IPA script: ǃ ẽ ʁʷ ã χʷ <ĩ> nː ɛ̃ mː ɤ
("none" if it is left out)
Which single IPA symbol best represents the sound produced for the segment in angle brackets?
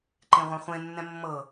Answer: ẽ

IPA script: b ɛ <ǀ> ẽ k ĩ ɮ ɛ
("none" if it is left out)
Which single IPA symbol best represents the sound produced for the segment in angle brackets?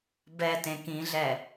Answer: t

